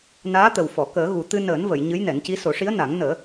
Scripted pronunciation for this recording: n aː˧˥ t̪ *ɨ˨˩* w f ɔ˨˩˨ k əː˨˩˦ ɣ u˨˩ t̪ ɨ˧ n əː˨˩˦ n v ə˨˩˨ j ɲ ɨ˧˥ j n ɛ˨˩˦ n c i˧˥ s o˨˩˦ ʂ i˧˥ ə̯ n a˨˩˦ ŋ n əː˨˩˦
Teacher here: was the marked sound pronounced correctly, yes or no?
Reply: no